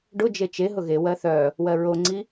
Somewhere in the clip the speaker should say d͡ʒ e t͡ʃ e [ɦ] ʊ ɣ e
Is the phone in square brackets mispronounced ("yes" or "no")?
no